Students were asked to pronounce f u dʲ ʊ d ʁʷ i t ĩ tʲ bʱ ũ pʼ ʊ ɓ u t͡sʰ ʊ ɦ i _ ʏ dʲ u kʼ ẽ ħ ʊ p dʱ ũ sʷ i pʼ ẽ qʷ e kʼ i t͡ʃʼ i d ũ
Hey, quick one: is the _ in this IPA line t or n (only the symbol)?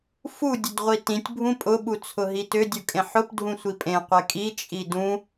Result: t